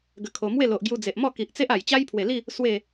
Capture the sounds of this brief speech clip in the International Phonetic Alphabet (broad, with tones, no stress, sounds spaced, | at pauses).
ɡ ə˧ kʰ o˧ m w e˥˧ l o˨ ʔ ɡ j u˧ d͡z e˨ ʔ m ɔ˥˧ k i˨ ʔ t͡s e˦ ʔ a˨˩ j t͡ɕ a˦ j pʰ w e˨˩ l i˥˧ | s w e˥˧